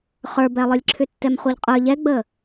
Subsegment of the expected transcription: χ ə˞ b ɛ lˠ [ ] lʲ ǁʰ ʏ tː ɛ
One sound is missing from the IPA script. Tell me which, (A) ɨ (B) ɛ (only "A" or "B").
A